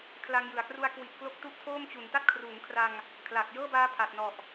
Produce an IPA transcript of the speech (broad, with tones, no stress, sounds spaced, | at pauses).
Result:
kʰ l a˧ ŋ j ɯ˨˩ a̯ k r u˦˥ a̯ k w i˨˩ ʔ k l o˦˥ k̚ t u˦˥ ʔ tʰ oː˥˩ m t͡ɕ u˩˦ n t a˥˩ t̚ kʰ r uː˩˦ ŋ kʰ r a˧ ŋ | kʰ l aː˨˩ k̚ j ɤː˥˩ b aː˦˥ pʰ a˨˩ t̚ n ɔ˨˩ ʔ